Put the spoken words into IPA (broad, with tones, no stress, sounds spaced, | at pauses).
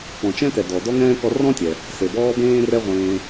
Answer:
p ɔ̃˨ t͡ʃ ɛ̃˦ t ɛ˨ d ɔ˨ d ɔ˥ ŋ ɛ̃ː˥ k ɔ˦ r ɔ̃˥ tʲ ɛ˨ | s e˨ b ɔː˦ b ẽː˥ r ɛ˥ ʁʷ ẽː˦